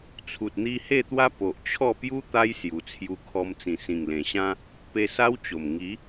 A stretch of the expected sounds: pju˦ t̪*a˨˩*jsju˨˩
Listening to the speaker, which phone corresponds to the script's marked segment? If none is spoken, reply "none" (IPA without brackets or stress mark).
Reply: a˦